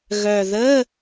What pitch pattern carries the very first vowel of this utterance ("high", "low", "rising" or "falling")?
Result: low